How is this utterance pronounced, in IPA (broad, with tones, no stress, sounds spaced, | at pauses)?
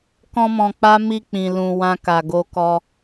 k ɔ̃˦ m ɔ̃˧ k͡p a˦ m i˧ k͡p ĩ˨ l ũ˨ w ã˧ k a˨ ɡ o˧ k ɔ˧